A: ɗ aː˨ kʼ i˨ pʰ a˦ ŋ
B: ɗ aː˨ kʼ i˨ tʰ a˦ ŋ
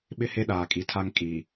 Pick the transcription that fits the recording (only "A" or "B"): B